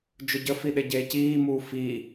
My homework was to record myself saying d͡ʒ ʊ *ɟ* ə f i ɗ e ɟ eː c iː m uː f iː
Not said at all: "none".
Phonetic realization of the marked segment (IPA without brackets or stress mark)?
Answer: ɟ